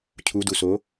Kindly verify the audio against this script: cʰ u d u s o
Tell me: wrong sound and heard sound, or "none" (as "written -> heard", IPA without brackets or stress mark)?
none